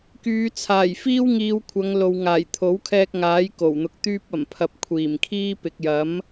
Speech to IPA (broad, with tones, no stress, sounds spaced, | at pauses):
k yː˨˧ t͡sʰ aː˨˩ j f iː˥ w ŋ iː˧ w kʷʰ ɐ˨˧ ŋ l o˨ w ŋ aː˨˩ j t̪ʰ o˨˥ w kʰ ɛː˧ k̚ ŋ aː˨˥ j k o˨˩ w n̪ ʊ˨ k̚ t̪ yː˧ p̚ ɐ˨˩ m pʰ ɐ˨ p̚ kʷʰ iː˨˩ m kʰ iː˥ p ɪ˨ k̚ j ɐ˨˥ m